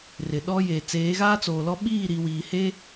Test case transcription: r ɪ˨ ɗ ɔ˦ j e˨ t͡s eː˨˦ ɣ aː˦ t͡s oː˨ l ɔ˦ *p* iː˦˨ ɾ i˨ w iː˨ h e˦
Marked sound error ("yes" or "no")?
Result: yes